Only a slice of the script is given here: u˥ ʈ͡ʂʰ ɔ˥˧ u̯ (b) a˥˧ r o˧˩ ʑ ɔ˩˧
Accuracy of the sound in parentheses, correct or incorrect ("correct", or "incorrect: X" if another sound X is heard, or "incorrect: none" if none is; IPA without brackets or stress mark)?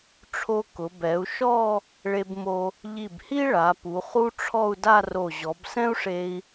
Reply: incorrect: d